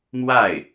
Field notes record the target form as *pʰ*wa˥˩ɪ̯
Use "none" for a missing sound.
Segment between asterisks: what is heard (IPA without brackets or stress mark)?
m